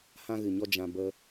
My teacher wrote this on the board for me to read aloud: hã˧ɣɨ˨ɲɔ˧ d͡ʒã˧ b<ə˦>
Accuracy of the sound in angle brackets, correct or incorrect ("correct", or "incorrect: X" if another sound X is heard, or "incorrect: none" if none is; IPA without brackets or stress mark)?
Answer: correct